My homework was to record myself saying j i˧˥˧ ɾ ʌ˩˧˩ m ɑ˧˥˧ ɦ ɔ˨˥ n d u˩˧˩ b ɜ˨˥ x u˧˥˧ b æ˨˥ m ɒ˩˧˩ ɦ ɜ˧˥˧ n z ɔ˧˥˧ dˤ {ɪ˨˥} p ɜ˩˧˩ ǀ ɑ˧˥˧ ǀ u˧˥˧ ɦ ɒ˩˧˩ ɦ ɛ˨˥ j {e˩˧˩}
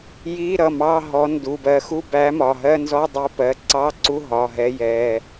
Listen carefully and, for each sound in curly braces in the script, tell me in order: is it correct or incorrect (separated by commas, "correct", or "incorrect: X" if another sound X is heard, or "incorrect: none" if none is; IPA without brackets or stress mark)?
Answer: incorrect: ɛ˨˥, incorrect: ɛ˩˧˩